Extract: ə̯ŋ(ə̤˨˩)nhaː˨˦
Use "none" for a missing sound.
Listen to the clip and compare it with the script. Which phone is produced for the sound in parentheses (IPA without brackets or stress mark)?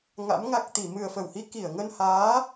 ə˧